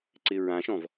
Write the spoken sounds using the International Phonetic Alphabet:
ǀ ɪ ɹ ã ʃ ɔ̃ v

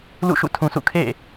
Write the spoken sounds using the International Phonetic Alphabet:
l ṵ˦˨ ʃ ṵ˦˨ tʰ ũ˨ sʰ ṵ˦˨ kʰ ḛ˦˨

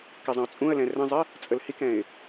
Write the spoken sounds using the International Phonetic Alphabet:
k ɪ zˤ ə̃ ʊ̯ t͡sʼ ũ ə̯ l ɛ̃ r ə̃ zˤ ɪ | t͡sʼ ə l h i k ɛ̃ ɪ̯

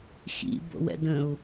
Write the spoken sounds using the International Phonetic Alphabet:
x ḭ b o̰ w ɛ̰ d ə̃ u̯

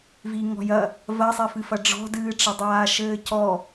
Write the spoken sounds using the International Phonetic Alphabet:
v i ŋ ɔ̤ j ɐ | v ɐ sˤ ɛ f ɨ f ɐ ɖ͡ʐ ɔ̤ d ɨː ʈ͡ʂ ɐ dˤ aː ʃ ɘː c ɔ

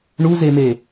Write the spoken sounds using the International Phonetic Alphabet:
ɳ u z e m e

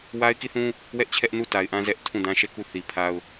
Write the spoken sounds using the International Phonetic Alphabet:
w a˦ ɪ̯ k i˦˨ θ ũ˦ | w ɛ˦ ʔ t͡ɕʰ ɛ˦ ʔ n u˦˨ t a˨ ɪ̯ ʔ ã˦ z ɛ˦ ʔ tʰ ũ˦˨ d ã˦ ʃ ɛ˦˨ k u˦˨ θ i˨ pʰ a˦ ʊ̯

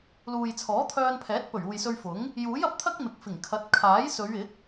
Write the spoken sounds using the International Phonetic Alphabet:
l uː˨ j t͡sʰ ɔː˨˥ t̪ʰ œː˧ n pʰ ɛː˨˥ t̚ p ɵ˨˩ ɥ uː˨ j s ɵ˧ ɥ f ʊ˨˥ ŋ | j uː˨˥ j ɐ˨ p̚ t̪ʰ ɐ˥ k̚ m ɪ˨ k̚ f ɪ˨˩ ŋ kʰ ɐ˨˥ t̚ kʰ aː˨˥ j s ɵ˨˧ ɥ ɪ˨˥ k̚

